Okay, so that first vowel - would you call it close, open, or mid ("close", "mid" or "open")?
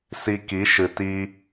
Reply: close